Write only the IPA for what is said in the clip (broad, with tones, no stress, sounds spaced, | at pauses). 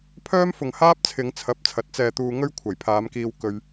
pʰ œː˥ m f ʊ˨ ŋ h aː˥ p̚ t͡sʰ ɪ˨˧ ŋ t͡sʰ ɐ˨˥ p̚ t͡sʰ ɐ˨˥ t̚ t͡s ɛː˧ t̪ uː˧ ŋ ɵ˥ ɥ kʷʰ ɐ˨˩ j pʰ aː˨˧ m k iː˧ w k ɵ˧ ɥ